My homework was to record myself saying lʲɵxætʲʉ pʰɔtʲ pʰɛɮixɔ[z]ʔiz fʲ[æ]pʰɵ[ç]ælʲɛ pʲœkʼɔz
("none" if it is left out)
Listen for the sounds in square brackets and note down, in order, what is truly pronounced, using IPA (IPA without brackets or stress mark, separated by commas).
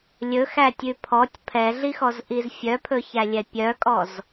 z, œ, ç